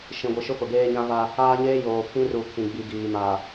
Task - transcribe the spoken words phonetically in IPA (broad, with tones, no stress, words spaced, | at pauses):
ʃĩ˨ɡʷi˨ʃʊ˦ pʊ˨ɡeː˦ɲã˦va˦ | aː˦ɲeː˦ joː˨kʰĩ˦ ru˨ kʰĩ˨ɡ͡bi˨ɡiː˨ ma˨